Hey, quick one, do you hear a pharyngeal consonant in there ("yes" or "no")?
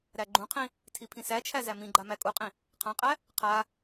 no